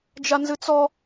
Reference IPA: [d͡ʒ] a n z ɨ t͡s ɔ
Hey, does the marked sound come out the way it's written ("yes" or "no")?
yes